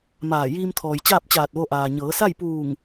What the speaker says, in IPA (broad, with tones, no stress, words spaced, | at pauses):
maː˧˩ jiː˧mt̪ʰɔː˩j t͡ɕaː˥˨p̚t͡ɕaː˧˩t̚ʋo˧ʔaː˩ ɲɤː˩˧sa˥˨j puː˧˩ŋ